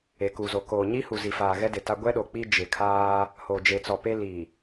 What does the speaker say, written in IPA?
e˨ku˨zo˨ koː˨ɲi˦hu˨ zi˨faː˨ɣɛ˦dɪ˨ ta˦ ɡʷɛ˦ɗo˨ k͡pi˦ d͡ʒɪ˨kʰaː˦ | ho˨d͡ʒe˨t͡sɔ˨pe˦ li˨

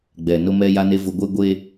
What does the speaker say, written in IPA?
ɡ͡bɛ˨ nʊ˦mɛ˦ ja˦ne˦ vʊ˦ ɡʷe˦ ɡʷeː˦

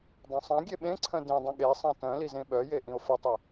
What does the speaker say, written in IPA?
dˤœ̃sˤãɡʲe ɓẽǀʰœ̃ dĩdˤœ̃ ɠe sˤãtœ̃lizẽ ɓœje ʔĩo̯fətˤe

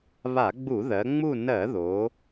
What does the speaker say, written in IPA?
βa˧˩˧ɡ͡bu˧˩˧ðɜ˩˧ŋ͡mu˦˨ nɜ˧˩˧ðo˩˧

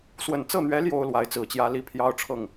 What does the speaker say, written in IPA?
swə˨˩nt͡sɤ˥˩n̪ɥɛ˧˥ ljo˥ʊ̯lwa˧˥ɪ̯t͡sɹ̩˨˩t͡ɕjä˥ li˥pʰjɑ˥ʊ̯ ʈ͡ʂʰɤ˥˩ŋ

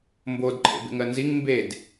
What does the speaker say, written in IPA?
mbodǃʰḛbḛŋɜ nziŋ mbed

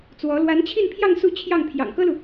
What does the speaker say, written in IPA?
t͡swɔ˧˥ lwa˧˥nt͡ɕʰi˥˧npʰjɑ˥˧ŋ su˥˧ t͡ɕʰjɑ˥˩ŋ pʰjɑ̰˨˩ŋkɤ˥lu˨

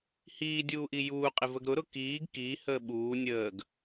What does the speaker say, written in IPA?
hiːdʲuːʔi juːqʼɪvəɡ ɾʊɾʊ kiːɡ kihəː ɓuː nʲəːɡ

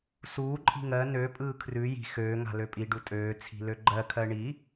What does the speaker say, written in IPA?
suːǃʼi̤ ŋɜ nøpʼɯː kʰrʉ ji̤ xøːŋa̤ løpʼiɖu tʼøː t͡sʰi̤løɡ͡ǃɜkʰɜ ɳi

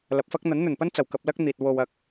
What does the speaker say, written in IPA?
lɐ˨p̚fɐ˥k̚ n̪ɐ˨˥nn̪ɵ˨˩npɐ˥nt͡sɐ˨˩w kɐ˧p̚lɐ˥k̚n̪iː˨t̚ wo˧wɐ˧k̚

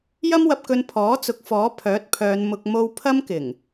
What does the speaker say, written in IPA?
jɐ˥mwɐ˧p̚kɵ˧n pʰɔː˨˥t͡sʊ˨˥k̚ fɔː˨˥pʰœː˨˥t̚pʰœː˨˧n mʊ˧k̚ mo˧w pʰɐ˥mkɪ˨˩ŋ

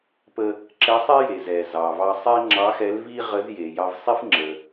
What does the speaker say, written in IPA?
pə˧ | ǁɛ˧˥sˤɛ˥je˩ zɛ˩zɑ˩vɑ˧ sˤɛ˥ŋ͡ǁɑ˧˥ xɛ˧˥lvi˥ ʁə˧˥zje˩ jɑ˧vsˤi˥f ŋ͡ǁə˩

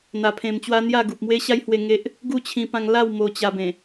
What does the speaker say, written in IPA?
n̪a˧pʰẽ˧mt͡ɕwa˦n̪ja˥˧ ɡu˨p̚mwe˦ɕa˦jhwe˧ ŋe˦ʔ | ɡu˥˧ t͡ɕʰĩ˧pã˧ŋla˥˧w mo˧t͡ɕa˧bẽ˨˩

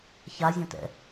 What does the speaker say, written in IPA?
ça zʲõtɛ̰

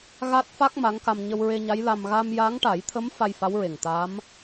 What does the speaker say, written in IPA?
ɣa˦˥t̚fa˦˥k̚ ma˧˥ŋka˧m ɲə˧wɹe˧ɲa˧˥j la˧m ɣa˧mja˧˥ŋʈa˨˩˦jt̪ʰə˧˥m fa˧jfa˧˥wɹe˨˩ŋ t̪a˧˥m

